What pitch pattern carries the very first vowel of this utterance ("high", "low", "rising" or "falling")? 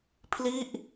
falling